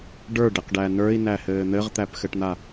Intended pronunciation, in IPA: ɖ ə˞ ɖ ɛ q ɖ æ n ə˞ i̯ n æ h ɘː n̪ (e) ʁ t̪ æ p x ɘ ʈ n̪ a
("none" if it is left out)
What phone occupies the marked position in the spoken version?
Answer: ɘ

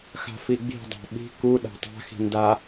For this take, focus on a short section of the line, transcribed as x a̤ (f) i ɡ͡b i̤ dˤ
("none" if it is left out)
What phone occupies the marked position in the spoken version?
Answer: f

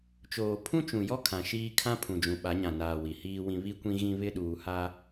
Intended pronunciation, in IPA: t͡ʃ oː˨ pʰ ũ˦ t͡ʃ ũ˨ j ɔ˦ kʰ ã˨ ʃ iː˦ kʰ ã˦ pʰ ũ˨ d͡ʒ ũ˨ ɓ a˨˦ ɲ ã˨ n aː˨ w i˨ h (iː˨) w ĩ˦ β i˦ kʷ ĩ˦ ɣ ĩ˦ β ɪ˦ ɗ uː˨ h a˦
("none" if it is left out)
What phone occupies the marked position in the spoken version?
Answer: iː˦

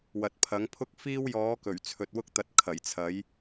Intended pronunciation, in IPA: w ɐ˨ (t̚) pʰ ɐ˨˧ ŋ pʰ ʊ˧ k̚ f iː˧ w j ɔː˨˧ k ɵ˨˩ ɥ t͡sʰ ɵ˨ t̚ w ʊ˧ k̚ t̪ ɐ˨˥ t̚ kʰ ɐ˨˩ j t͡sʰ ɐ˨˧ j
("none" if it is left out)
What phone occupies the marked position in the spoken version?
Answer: t̚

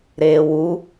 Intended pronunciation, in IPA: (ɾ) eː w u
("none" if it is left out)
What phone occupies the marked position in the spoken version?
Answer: ɾ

